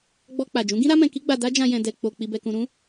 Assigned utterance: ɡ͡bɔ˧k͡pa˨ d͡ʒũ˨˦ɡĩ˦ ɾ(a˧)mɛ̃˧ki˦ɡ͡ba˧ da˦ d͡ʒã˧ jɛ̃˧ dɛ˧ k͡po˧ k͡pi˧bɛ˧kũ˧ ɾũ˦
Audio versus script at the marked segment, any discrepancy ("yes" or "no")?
yes